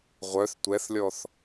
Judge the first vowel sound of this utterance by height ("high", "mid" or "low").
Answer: mid